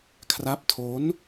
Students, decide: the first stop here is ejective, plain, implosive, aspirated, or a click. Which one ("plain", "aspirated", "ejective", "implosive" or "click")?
aspirated